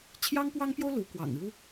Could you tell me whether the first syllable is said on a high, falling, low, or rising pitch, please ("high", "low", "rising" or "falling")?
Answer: high